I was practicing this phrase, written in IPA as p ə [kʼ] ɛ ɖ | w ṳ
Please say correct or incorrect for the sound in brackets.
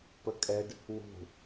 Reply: correct